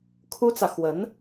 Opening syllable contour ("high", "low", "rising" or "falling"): high